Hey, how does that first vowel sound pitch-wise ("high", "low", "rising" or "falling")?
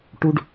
low